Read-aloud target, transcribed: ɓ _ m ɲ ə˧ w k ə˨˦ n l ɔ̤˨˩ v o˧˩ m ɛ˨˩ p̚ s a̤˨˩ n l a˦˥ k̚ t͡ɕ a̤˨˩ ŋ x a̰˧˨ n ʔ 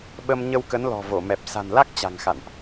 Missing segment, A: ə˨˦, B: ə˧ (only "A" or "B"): B